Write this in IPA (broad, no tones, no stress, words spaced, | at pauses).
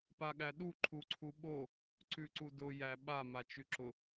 paɠæɗu ǃʰuǀʰuɓo | ǀʉǀudʊ jæ ɓa mat͡ʃʉǁʊ